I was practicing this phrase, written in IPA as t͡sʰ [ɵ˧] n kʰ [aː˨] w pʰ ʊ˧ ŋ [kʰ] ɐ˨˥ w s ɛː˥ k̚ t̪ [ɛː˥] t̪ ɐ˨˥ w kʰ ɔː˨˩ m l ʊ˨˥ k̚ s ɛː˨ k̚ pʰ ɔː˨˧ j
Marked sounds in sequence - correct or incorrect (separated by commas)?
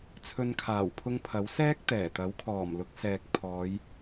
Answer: incorrect, incorrect, incorrect, incorrect